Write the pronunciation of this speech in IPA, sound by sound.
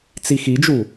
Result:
t͡s i x i d͡ʒ u

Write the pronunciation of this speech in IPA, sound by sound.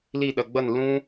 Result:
l i˥˧ ɗ ʌ˧ ɡ͡b ʌ˥˧ n l ũ˥

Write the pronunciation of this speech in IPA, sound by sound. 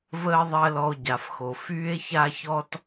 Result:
v əː˥ ðˤ ɜ˥ l ɔ˦ o̯ ɟ a˨ f x o˨ f yː˥ e̯ ç a˥ ç ɔ˥ t

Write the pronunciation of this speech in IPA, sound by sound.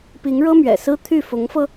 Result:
p i˧˥ ŋ ɻ ɤ˥ m ɥ ɛ̰˨˩ s ɹ̩˥ t̪ʰ y˥˩ f ʊ˧˥ ŋ f ɤ˧

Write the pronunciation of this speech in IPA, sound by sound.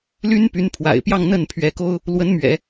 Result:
l y˥ n p y˧˥ n pʰ w a̰˨˩ ɪ̯ p j ɑ˥˧ ŋ n̪ ə˥˩ n pʰ ɥ ɛ˧˥ k o˥ ʊ̯ | l w ə˧˥ n m ɥ ɛ̰˨˩˦

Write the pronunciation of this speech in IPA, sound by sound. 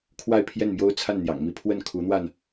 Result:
kʰ w a˥˧ ɪ̯ pʰ j ɛ˥˩ n m j o˥ ʊ̯ t͡sʰ a˥˩ n n̪ j ɑ̰˨˩ ŋ m i˥ pʰ w ə˥˩ n kʰ u˧˥ n̪ w a˧ n

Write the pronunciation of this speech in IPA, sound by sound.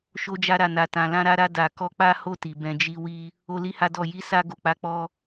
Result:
ʃ o˧ d͡ʒ a˧ ɾ a˨ n a˨ t ã˨ l ã˧ ɾ a˧ ɾ a˧ d a˨ k ɔ˧ k͡p a˦ h o˦˨ t i˨ b ɛ̃˧ d͡ʒ i˦ w i˦ | o˦ l i˦ h a˦ d ɔ˦˨ j i˨˦ s a˧ ɡ o˨ k͡p a˨˦ k͡p ɔ˧

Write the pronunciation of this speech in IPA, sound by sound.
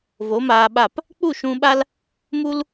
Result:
v o˨˦ m aː˧ ɓ a˦˨ p | k͡p u˦˨ ʃ ũ˧ ɓ a˦ l | m u˦ l

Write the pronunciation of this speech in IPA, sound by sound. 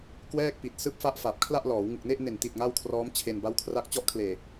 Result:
k w ɛː˥˩ k̚ p i˨˩ t̚ s ɯː˦˥ p̚ f a˦˥ ʔ f a˨˩ p̚ kʰ l a˥˩ ʔ l ɔː˩˦ w ŋ ɯ˨˩ k̚ n e˥˩ ʔ n e˨˩ n t i˨˩ t̚ ŋ a˥˩ w kʰ r ɔː˦˥ m t͡ɕʰ e˧ n b a˦˥ w kʰ r a˦˥ k̚ t͡ɕ ɔ˥˩ ʔ kʰ l eː˨˩

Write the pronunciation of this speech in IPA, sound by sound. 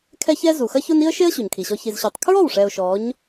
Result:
kʰ ɛ˦ ç ɛ˦ z u˨ x ɐ˦ ç ʊ˦ n i˦ ə̯ ʃ e˦ ə̯ ɕ u˨ ɲ kʰ i˨ ɕ ɔ˧ ç i˨ z ɕ u˨ tˤ kʰ ɹ ɔ˦˨ w ʂ ɛ˨ ʊ̯ ʃ ɔ˨˦ ɲ

